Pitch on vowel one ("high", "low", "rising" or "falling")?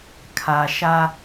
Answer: low